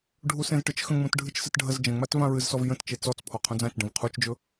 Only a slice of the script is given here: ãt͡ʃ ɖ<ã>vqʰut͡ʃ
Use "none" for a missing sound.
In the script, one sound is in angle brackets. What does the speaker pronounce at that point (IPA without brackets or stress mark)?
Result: ə̃